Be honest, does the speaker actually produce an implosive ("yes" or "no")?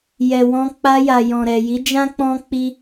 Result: no